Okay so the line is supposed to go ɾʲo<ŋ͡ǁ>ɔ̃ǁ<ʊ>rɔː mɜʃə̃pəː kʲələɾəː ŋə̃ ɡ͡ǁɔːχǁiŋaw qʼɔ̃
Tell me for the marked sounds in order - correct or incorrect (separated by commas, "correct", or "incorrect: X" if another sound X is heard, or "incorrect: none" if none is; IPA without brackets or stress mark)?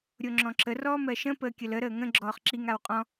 correct, incorrect: ə